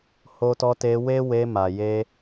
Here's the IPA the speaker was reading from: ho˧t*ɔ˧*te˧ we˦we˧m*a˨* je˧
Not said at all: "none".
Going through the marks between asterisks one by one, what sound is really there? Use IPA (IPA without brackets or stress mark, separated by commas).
ɔ˧, a˨